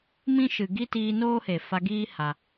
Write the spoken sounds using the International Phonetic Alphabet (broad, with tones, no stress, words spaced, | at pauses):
mĩ˦ ʃɨ˨ɡi˦ tiː˧noː˦he˨ fa˧ɡiː˦ ha˧